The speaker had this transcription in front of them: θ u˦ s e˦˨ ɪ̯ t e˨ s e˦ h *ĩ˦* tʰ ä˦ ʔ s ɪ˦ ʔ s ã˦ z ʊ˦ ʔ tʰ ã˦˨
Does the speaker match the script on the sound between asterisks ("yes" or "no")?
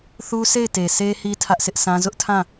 no